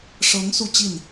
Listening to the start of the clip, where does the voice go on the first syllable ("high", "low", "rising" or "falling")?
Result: rising